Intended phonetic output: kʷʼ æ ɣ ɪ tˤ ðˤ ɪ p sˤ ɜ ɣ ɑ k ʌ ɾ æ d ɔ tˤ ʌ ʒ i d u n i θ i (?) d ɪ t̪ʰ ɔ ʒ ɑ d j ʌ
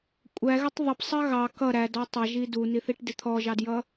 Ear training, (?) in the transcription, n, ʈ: ʈ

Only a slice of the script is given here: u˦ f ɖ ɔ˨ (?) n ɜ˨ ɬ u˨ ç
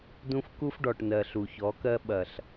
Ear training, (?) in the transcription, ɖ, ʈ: ʈ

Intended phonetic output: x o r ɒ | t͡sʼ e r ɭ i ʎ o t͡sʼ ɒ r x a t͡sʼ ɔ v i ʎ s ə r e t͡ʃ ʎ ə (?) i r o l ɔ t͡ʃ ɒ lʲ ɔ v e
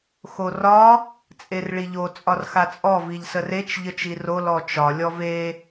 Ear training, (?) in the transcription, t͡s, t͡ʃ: t͡ʃ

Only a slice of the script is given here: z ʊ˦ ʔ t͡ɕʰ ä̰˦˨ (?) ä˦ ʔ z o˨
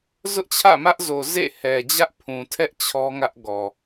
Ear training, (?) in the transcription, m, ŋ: m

